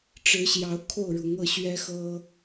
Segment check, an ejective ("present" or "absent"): absent